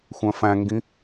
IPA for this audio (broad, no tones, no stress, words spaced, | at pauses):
xʷœ̃fæ̃ŋɡĩ